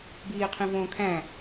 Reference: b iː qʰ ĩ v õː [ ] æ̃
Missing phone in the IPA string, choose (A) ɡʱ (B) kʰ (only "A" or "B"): B